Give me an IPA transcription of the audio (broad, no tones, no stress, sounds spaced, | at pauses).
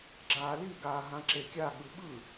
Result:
ɡ͡ǁ aː l i ɡ aː ɦ ã ǁ e kʲ a ɠ ɯ ɓ ɯ